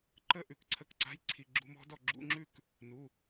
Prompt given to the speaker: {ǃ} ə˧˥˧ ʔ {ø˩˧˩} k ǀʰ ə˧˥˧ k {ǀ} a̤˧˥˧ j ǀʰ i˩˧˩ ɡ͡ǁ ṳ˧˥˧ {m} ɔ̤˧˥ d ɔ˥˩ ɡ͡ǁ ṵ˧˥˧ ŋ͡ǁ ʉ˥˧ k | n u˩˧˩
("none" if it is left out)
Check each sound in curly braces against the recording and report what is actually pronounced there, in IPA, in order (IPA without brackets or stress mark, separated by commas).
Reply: ǃ, ʉ˩˧˩, ǀ, m